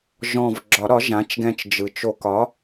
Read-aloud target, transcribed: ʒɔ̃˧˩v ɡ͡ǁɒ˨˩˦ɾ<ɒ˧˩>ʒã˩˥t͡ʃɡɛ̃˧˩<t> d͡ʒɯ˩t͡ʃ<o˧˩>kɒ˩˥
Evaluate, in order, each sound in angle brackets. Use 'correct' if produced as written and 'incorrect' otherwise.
incorrect: ɒ˩˥, incorrect: t͡ʃ, incorrect: o˨˩˦

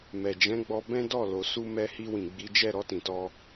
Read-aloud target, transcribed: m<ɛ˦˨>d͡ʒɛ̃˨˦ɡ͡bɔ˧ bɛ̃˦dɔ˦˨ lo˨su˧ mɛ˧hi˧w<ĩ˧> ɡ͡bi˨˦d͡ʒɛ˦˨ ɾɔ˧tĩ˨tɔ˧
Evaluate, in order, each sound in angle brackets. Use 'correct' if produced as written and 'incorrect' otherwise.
incorrect: ɛ˨, incorrect: ĩ˨

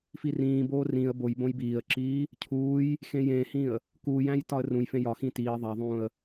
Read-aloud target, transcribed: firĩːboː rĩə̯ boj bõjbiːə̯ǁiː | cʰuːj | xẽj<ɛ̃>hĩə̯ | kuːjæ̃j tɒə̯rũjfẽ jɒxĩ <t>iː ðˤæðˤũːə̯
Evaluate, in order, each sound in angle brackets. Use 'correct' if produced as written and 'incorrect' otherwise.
incorrect: ẽ, correct

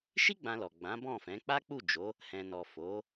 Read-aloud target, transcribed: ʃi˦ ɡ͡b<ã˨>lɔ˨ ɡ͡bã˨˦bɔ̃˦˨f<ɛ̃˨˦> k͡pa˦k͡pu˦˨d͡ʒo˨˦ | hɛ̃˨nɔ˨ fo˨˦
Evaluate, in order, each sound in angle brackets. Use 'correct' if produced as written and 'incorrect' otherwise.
incorrect: ã˧, correct

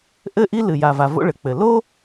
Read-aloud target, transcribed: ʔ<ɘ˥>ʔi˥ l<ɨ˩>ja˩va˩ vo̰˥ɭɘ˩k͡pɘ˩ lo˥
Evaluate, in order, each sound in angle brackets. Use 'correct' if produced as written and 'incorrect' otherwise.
correct, correct

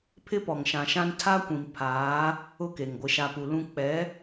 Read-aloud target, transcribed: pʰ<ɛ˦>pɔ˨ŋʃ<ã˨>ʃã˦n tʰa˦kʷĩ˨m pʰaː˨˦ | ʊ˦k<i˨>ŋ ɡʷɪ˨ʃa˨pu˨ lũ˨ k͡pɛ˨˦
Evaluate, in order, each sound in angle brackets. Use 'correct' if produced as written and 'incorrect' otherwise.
incorrect: ɪ˦, correct, incorrect: e˨

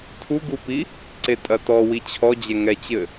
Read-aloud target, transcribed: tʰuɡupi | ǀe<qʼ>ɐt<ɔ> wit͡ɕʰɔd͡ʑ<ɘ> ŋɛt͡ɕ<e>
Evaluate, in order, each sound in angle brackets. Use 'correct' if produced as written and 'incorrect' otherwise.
incorrect: tʼ, correct, incorrect: ɛ, incorrect: ɘ

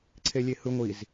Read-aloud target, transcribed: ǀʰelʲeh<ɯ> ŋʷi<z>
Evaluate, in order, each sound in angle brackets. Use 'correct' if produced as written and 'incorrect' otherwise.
correct, correct

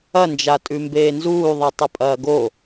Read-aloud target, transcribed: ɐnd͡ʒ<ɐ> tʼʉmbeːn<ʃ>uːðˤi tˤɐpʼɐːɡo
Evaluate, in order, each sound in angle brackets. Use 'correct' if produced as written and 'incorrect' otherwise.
incorrect: a, incorrect: z

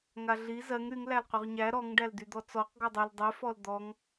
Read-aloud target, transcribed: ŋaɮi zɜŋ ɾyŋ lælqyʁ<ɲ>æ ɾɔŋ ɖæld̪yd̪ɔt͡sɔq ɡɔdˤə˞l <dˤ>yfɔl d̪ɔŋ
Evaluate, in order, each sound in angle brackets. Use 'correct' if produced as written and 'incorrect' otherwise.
correct, correct

